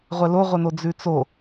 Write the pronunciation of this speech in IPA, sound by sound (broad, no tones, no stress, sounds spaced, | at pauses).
ʁʷ ɛ l o ʁʷ ɛ n o d͡z ʉ t͡s o